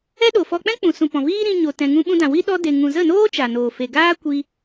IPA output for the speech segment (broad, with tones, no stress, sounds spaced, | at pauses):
ɛ˦ ɗ o˨ f ɔ˧ k͡p ɛ̃˦ k͡p ũ˨ s ũ˨ p ɔ̃˨ v iː˦ ɾ ĩ˧ ɲ o˧ t ɛ̃˧ ŋ ũ˦ ɓ ũ˧ d ã˨ w i˦ ɗ ɔ˦ d e˧ ŋ ũ˨ z ə˦˨ n oː˦ t͡ʃ a˨ n oː˨ f e˨ ɡ aː˦ kʷ i˦